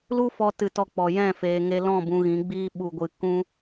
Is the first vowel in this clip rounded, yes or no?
yes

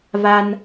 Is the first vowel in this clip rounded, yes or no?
no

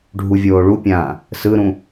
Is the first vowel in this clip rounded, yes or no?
yes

